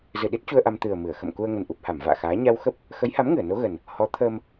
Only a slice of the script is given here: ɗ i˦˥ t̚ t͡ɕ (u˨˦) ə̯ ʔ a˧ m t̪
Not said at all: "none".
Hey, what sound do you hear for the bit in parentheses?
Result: u˧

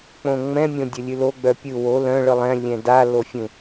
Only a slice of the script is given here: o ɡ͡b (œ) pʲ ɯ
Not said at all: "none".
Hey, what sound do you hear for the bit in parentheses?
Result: œ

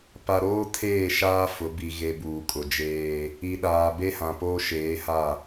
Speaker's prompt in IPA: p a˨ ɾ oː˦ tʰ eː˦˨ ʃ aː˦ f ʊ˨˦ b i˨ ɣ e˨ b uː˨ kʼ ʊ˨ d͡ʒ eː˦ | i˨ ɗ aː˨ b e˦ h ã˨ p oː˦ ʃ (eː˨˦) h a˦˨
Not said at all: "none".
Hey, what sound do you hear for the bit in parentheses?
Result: eː˨˦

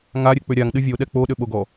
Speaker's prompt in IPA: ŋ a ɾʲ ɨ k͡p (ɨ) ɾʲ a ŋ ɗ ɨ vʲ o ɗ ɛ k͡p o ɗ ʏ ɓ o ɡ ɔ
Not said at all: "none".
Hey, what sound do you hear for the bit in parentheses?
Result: ʏ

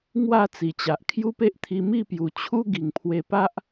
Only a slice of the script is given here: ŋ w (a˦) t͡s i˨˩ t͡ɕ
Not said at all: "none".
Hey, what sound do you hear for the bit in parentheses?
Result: a˥˧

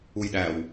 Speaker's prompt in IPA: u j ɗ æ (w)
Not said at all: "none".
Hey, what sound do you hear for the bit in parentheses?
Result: w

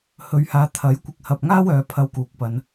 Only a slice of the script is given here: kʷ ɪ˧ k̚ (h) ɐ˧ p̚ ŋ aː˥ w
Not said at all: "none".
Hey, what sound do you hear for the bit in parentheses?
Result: h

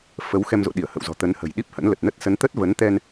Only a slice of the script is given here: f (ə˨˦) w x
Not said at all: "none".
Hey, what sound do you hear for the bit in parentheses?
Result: ə˨˦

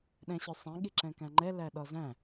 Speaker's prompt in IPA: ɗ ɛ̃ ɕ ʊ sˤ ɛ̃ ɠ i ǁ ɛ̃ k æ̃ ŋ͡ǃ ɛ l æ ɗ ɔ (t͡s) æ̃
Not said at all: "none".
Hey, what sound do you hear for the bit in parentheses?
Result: z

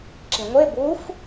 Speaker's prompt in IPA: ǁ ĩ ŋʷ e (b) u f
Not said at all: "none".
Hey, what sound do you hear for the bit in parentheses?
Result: b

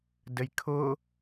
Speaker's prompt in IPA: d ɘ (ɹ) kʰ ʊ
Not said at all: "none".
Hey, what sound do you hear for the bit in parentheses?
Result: j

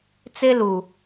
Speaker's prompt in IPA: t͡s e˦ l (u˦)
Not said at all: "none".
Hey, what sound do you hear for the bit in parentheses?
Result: u˨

